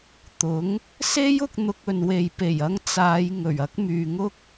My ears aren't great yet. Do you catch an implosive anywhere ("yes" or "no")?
no